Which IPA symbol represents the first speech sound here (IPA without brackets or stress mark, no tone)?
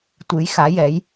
tʷ